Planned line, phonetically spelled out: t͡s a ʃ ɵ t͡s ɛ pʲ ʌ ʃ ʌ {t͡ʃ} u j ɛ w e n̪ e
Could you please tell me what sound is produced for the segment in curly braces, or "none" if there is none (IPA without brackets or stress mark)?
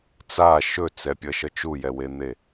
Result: t͡ʃ